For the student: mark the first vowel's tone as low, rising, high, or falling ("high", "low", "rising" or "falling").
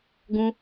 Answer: high